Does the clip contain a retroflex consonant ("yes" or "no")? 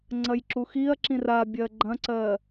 no